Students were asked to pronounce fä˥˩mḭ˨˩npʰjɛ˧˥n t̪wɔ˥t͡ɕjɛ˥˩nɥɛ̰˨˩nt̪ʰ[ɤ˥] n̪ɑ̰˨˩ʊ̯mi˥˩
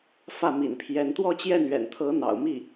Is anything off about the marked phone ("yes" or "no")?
yes